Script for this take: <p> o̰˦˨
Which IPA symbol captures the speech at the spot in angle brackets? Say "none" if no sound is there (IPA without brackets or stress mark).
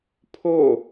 pʰ